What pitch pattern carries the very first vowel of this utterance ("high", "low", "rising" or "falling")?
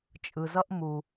low